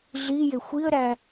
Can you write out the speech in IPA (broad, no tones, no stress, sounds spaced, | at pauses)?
ɮ i j e xʷ i ə̯ ɾ æ